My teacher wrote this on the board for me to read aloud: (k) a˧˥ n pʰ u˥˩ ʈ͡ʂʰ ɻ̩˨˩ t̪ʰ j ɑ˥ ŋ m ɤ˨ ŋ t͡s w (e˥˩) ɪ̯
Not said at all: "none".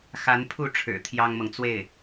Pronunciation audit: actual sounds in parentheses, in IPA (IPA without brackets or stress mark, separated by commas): x, e˥˩